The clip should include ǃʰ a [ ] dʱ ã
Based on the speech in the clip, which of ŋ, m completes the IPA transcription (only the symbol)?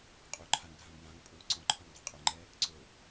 ŋ